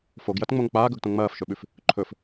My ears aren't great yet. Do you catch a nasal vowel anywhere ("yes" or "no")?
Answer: yes